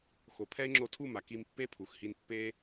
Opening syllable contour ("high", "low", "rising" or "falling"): rising